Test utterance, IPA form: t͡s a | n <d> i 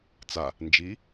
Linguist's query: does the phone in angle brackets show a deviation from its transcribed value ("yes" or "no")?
yes